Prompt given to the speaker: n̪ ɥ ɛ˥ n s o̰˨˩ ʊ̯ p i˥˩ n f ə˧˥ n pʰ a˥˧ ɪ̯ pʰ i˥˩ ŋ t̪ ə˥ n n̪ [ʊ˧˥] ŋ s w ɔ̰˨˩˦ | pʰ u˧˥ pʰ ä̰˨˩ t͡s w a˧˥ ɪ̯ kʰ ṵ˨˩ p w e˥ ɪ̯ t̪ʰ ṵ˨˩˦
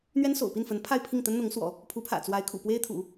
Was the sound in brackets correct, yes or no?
yes